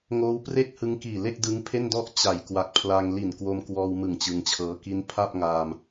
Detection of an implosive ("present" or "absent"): absent